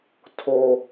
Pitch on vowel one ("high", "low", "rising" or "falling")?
high